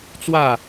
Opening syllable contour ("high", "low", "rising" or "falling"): falling